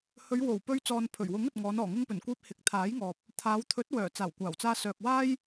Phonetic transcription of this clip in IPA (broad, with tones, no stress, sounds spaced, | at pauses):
h ɵ˨˧ ɥ w o˨˩ w p ɵ˧ ɥ t͡s ɔː˨ n pʰ ɵ˨˩ ɥ w ʊ˨˥ ŋ ɵ˨ t̚ ŋ ɔː˨˧ n ɔː˨˩ ŋ ʊ˧ ŋ p ɵ˨˩ n kʷ iː˧ p̚ h ɪ˨ k̚ t̪ʰ aː˨˥ j ŋ ɔː˨ p̚ | t̪ʰ aː˨˧ w t̪ʰ ɵ˨˥ t̚ w œː˨˩ t͡s aː˨˩ w kʷ aː˨˩ w t͡s aː˧ s œː˨ k̚ w aː˥ j